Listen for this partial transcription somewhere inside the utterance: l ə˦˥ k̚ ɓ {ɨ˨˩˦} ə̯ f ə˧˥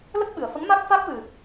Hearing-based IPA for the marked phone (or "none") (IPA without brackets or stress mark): ɨ˨˩